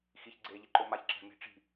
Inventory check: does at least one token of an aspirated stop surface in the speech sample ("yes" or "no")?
no